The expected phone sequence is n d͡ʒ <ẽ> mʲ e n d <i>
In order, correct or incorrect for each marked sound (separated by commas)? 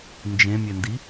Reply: correct, correct